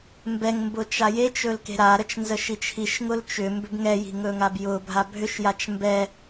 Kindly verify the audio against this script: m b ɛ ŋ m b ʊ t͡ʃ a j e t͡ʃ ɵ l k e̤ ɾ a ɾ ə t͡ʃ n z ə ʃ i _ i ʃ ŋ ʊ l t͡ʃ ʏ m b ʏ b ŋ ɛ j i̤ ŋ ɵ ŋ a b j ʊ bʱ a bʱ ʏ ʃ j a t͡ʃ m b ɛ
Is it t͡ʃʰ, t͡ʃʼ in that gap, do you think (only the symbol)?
t͡ʃʰ